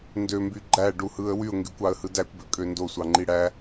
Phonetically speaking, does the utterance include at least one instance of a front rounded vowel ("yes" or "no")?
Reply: yes